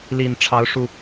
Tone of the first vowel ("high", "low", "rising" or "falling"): low